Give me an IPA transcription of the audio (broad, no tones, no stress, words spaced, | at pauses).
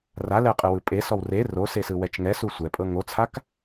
ralɛqʼɯwɯ pʼesɔw re rosesɯwɛt͡ʃ ŋɛsu sʷɛpʼɤ ŋot͡sʰak